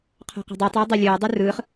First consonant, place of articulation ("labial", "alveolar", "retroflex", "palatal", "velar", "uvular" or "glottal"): uvular